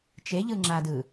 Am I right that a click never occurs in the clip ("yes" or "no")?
no